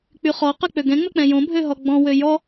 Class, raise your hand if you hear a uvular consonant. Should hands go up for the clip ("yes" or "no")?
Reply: yes